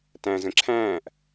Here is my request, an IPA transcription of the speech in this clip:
t æ̃ z ə̃ ǁʰ æ̃ː ʔ

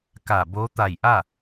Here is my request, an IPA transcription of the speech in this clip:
k a˧˩ b o˧˥ t̪ a˧˩ j ʔ a˥˨

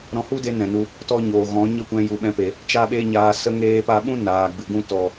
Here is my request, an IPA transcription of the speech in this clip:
ɾ ɔ̃˧ h u˦ d e˧ n ɛ̃˨ n u˧ | t ɔ˦ ɲ oː˨ ɣ ɔ̃˨˦ ɲ ə˦ kʷ ɛ̃˧ j u˨ ɓ ɛ̃˧ p e˨ | t͡ʃ a˦ ɓ e˦ ɲ aː˧ s ə˧ ŋ eː˧ p a˧ ɓ ũ˦ n aː˨ ɡ͡b ɨ˨ ɡ ũ˦ t ɔ˨

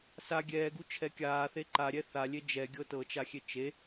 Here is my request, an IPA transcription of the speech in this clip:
s a ɡʲ ɛː ɡ u t͡ʃʰ ɛ kʲ aː θ e ǃ a ɾʲ ɛ θ a lʲ e d͡ʒ ɛ ɡʲ ɤ t ɤ t͡ʃ a xʲ e t͡ʃ e

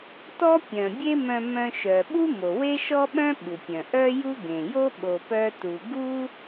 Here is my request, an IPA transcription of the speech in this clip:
t ɔ˥ pʲ œ̃˩ bʲ e˥ m œ̃˧ m œ̃˧ ʃ œ˩ ɓ u˥ m o˩ w e˥ ʃ ɔ˥ ɓ œ̃˥ ɓ u˩ pʲ œ̃˩ ʔ œ˥ j u˥ ɡ ẽ˩ j o˥ ɓ o˧ p œ˥ t u˧ ɡ u˥

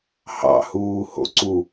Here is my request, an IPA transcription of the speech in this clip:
h ɑ̰ h uː h o̰ ǀ u

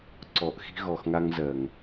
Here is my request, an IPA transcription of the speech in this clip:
ǀ ɔ˨ ʔ x i̤˦ ɣ ɔ˨ x ŋ a˦ ŋ z ɜ˨ ŋ

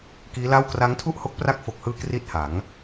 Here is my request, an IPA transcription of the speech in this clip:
k iː˦˥ l a˥˩ w k r a˦˥ ŋ tʰ u˥˩ ʔ h o˦˥ k̚ p r a˦˥ k̚ f o˨˩ k̚ h ɯː˧ k r i˥˩ t̚ h a˩˦ ŋ

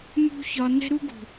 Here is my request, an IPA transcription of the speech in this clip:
m ṳ˦ ç ɒ˧ n ɛ̤˦ ɾ u˦ ɡ ṳ˨

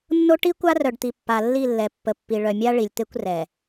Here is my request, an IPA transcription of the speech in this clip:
nː o˦ ʈ i˦ kʷ a˦ r œ˨ ɖ t̪ i˨ pː a˨ lː i˦˨ lː ɛ˨ pː ə˨ pː i˨ ɭ œ˨ mʲ a˦ ɭ i˨ lʲ t̪ e˦ kʷ r ɛ˨

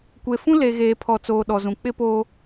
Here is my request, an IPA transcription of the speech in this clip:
kʷ e˨ f ũ˦ l e˨ ɣ eː˨ pʰ ɔ˨ t͡s oː˨ ɗ ɔ˨ z ũ˨ k͡p ɪ˦ p oː˦

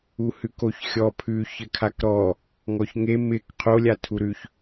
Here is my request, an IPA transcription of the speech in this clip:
u h ʉ k o ç xʲ ɔ pʰ ʉ ç ɘ kʰ a k ɾ ɔ | ŋ ɔ ç ŋ e m ɪ k qʰ o lʲ a tʰ u ɾ ʉ ç

